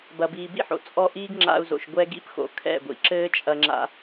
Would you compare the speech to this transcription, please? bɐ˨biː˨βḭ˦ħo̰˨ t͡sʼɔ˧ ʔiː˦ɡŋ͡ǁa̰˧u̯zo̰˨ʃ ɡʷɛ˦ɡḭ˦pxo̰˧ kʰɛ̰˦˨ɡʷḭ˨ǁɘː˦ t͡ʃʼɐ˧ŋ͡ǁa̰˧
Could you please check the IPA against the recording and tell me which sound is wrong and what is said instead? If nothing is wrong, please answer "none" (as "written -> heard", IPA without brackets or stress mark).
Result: β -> b